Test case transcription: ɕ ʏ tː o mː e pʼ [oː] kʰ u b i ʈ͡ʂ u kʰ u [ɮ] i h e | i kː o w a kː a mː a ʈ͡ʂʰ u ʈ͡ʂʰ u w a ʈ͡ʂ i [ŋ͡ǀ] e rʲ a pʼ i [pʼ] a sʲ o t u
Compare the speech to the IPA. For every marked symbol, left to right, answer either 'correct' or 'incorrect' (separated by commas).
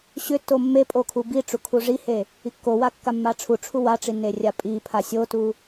incorrect, incorrect, incorrect, incorrect